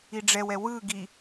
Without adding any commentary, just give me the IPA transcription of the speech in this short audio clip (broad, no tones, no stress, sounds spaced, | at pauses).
i ɖ͡ʐ ɛ w ɛ w ɯ ɡ i